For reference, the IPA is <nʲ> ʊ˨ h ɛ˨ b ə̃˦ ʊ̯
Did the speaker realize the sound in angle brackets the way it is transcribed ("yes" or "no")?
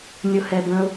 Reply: yes